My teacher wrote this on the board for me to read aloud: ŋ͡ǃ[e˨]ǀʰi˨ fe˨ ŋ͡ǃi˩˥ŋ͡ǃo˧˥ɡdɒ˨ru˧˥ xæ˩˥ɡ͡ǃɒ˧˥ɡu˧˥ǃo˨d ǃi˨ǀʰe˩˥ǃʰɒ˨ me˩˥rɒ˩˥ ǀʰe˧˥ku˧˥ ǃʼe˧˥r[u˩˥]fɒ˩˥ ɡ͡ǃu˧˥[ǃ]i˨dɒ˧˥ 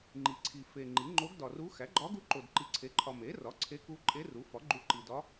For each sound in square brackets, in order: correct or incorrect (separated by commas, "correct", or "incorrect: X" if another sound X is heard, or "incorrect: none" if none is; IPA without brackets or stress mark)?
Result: incorrect: i˨, correct, correct